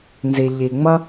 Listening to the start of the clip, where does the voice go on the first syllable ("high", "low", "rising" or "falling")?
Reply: low